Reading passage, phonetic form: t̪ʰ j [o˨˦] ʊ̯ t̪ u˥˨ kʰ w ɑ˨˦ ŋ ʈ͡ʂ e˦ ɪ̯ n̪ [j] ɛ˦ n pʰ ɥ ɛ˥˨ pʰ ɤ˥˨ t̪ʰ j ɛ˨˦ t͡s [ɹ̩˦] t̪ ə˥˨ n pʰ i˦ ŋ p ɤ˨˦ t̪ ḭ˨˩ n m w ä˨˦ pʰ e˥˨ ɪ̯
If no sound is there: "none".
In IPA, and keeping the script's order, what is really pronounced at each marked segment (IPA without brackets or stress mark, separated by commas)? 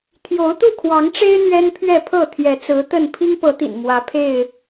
o˨˦, ɥ, ɹ̩˨˦